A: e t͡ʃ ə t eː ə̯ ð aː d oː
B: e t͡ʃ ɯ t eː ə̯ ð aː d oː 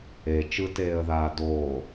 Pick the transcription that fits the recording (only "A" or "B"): B